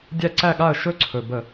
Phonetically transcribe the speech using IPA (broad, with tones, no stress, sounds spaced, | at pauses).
dʲ æ˥˨ ǀ æ˥˨ ɠ a˥˨ ə̯ ʃ ɵ˥˨ ǀʰ ɵ˨˩ b ə˧˩˧